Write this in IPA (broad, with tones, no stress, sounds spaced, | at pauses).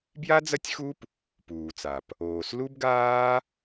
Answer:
b j a˥ d͡z ɐ˥ tʲ x u˥ p | p uː˩ t͡s a˩ p | oː˩ s l u˥ b ɡ aː˥